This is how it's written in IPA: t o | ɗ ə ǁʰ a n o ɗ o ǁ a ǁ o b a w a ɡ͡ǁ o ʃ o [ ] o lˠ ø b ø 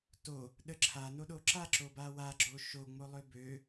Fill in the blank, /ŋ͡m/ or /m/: ŋ͡m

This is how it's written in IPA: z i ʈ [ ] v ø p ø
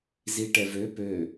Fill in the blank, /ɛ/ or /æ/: ɛ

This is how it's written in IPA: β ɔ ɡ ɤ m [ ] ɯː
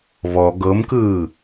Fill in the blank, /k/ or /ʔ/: k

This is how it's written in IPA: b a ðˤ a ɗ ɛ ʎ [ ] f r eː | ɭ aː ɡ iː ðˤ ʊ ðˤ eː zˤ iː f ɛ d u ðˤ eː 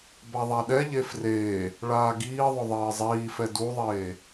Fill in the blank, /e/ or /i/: e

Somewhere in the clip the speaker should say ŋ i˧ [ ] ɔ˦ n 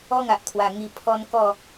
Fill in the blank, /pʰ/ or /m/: pʰ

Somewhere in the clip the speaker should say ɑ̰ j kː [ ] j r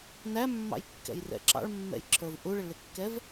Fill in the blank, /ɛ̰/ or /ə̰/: ɛ̰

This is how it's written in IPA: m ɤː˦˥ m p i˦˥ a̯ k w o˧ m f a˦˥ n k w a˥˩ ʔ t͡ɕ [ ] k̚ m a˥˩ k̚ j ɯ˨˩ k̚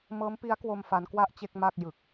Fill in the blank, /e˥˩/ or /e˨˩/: e˥˩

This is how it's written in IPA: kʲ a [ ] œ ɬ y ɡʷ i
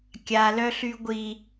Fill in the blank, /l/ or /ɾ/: l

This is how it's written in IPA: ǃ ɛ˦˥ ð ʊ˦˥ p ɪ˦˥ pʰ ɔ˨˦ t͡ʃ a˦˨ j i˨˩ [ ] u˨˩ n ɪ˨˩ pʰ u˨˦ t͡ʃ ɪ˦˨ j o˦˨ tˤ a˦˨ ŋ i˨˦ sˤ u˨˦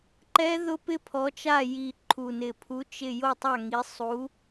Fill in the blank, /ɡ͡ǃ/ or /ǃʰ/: ǃʰ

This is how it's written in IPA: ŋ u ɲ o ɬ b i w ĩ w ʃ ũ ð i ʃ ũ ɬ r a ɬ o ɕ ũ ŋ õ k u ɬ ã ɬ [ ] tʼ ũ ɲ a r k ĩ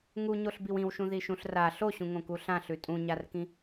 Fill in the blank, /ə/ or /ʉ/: ʉ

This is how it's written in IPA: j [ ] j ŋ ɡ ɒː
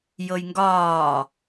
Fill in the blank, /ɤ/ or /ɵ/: ɤ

